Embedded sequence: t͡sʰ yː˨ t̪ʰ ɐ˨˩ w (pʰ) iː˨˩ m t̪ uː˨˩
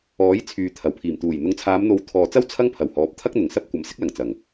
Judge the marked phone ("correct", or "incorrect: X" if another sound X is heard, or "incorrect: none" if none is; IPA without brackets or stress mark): correct